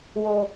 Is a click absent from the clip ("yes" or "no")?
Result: yes